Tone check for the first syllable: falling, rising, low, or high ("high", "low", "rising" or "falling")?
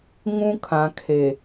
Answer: high